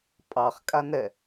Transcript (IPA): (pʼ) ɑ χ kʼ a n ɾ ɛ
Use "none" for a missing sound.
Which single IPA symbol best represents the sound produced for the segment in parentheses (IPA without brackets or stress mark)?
pʼ